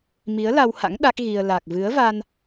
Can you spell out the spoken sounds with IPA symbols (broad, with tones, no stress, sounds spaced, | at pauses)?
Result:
m i˨˦ ə̯ l a˧ w h a̰˧˥ ŋ ɗ a˦˥ k̚ ɣ i˧ ə̯ l a˨˩ k̚ v ɨ˨˦ ə̯ v a˧ n